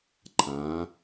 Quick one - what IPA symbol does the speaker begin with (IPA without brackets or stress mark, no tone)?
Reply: ǃʰ